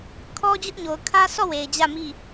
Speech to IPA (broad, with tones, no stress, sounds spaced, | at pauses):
kʰ ɔ˦ d͡ʑ ʊ˦ ʔ ɲ o˨ ʊ̯ kʰ ä˦ s ɔ˦˨ w e˨ ɪ̯ d͡ʑ ä˦˨ m i˦˨